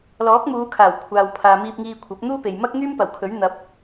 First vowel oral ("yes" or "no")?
yes